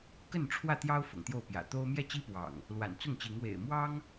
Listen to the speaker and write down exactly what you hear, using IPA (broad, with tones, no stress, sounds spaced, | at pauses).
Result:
k ə˥˨ n ʈ͡ʂʰ w ä˥˨ t̪ j ɑ˦ ʊ̯ f ʊ̰˨˩ ŋ t̪ j o˥˨ ʊ̯ p j ä̰˨˩ t̪ o˦ ʊ̯ m j ɛ˥˨ t͡ɕ i˦ p w ɑ̰˨˩ ŋ | l w a̰˨˩ n t͡s ʊ˥˨ ŋ t͡ɕ i˨˦ ŋ w ḛ˨˩ ɪ̯ m w ɑ˦ ŋ